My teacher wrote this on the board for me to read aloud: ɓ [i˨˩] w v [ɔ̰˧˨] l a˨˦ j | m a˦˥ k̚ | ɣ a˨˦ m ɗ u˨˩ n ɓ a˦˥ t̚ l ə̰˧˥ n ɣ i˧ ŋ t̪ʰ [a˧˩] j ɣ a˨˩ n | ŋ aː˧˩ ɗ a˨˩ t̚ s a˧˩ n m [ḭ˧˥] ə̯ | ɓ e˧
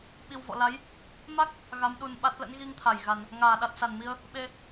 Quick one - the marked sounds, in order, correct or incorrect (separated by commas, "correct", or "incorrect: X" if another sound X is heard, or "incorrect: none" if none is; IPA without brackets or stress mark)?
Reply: correct, correct, correct, incorrect: i˧